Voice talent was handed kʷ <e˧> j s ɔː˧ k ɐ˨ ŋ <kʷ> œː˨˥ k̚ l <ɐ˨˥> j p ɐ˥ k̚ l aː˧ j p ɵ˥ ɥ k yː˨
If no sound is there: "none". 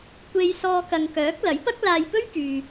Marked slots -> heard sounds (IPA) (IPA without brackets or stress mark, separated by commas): e˧, k, ɐ˨˥